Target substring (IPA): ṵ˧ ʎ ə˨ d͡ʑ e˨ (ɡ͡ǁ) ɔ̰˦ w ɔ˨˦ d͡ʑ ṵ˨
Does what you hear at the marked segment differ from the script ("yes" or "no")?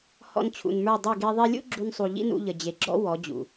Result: no